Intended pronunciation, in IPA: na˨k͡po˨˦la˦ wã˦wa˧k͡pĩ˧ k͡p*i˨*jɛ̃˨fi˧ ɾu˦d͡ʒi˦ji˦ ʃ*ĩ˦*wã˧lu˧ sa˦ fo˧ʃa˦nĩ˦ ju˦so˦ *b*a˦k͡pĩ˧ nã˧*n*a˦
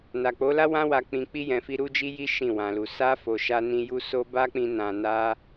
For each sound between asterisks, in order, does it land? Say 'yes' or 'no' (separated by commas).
no, no, yes, yes